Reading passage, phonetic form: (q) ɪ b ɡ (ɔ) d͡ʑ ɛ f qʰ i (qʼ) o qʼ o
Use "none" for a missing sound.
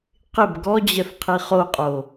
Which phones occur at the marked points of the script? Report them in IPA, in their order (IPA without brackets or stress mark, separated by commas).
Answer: q, ɔ, χ